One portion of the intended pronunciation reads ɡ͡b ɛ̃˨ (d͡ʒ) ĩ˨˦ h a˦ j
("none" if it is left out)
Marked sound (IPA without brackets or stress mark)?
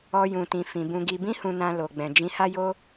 d͡ʒ